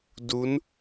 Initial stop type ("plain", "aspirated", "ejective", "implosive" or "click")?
plain